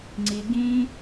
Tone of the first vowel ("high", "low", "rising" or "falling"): high